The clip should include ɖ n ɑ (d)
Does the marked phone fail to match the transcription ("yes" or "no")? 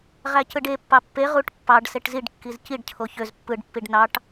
yes